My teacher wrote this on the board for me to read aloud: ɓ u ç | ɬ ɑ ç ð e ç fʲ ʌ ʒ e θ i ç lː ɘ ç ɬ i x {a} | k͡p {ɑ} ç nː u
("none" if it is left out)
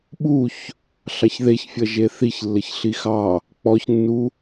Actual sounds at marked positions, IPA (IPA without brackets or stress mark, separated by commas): ɑ, ɔ